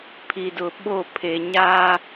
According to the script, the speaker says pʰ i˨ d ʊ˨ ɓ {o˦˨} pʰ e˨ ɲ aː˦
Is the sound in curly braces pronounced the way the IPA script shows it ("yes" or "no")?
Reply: yes